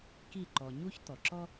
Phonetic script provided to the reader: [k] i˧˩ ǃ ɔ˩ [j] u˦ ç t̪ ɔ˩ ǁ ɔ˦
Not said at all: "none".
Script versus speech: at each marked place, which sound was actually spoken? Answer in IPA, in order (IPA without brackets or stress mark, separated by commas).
k, ɲ